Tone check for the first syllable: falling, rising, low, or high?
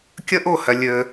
high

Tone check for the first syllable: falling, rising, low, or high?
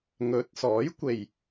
rising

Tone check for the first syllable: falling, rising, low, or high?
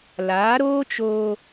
rising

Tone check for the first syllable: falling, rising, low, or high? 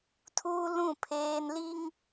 high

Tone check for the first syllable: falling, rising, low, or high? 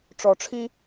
low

